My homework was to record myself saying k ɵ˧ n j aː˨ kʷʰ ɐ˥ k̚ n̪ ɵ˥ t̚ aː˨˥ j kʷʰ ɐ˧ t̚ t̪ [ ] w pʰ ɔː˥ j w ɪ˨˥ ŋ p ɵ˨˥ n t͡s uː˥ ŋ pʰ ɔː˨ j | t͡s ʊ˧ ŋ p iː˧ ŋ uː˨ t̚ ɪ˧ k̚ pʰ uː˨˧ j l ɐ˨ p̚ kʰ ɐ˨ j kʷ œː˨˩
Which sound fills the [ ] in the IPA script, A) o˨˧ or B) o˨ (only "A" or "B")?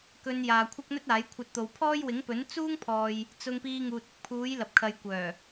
B